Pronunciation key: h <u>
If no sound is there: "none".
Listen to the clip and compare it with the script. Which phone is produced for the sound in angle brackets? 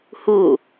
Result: u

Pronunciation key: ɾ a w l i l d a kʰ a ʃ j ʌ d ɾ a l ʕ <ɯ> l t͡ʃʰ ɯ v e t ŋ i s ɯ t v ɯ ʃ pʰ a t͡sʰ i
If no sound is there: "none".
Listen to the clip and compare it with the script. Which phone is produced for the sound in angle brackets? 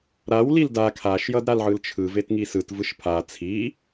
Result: ɯ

